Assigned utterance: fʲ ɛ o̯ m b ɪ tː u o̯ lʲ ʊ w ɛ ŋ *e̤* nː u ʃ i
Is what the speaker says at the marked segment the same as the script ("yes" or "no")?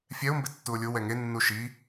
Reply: no